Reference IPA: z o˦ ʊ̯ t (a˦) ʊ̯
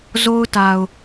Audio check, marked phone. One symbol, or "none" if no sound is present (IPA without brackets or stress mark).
a˨